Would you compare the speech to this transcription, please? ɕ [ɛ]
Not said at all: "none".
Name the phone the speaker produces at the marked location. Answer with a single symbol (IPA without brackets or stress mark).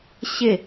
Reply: ɪ